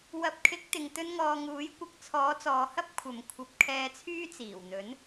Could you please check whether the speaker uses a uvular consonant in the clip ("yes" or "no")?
no